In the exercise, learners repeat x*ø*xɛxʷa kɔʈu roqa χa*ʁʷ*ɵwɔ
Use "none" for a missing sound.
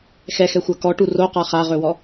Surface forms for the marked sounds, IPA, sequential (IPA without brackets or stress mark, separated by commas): ɛ, ʁ